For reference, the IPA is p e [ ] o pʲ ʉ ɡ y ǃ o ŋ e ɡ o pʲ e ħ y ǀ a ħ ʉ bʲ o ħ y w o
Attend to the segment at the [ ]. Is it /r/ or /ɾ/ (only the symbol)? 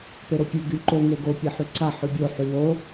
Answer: ɾ